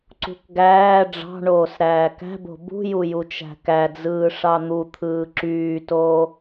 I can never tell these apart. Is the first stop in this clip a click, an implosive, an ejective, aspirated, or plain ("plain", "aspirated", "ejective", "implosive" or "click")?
click